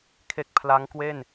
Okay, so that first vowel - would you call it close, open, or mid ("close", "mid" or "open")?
mid